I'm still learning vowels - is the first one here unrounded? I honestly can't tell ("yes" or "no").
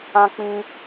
yes